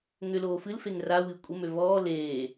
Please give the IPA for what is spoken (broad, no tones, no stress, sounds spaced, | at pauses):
ŋ ʏ l oː f ɨ l f e ŋ r a w ɨ kʷʼ ə m ø v ɔː l eː